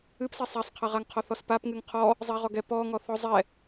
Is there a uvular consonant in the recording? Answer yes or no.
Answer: yes